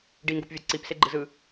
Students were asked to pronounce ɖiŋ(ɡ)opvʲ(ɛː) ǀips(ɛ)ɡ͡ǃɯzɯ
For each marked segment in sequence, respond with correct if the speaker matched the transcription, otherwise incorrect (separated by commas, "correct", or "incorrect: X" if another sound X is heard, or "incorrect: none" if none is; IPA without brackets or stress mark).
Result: correct, incorrect: ɛ, incorrect: e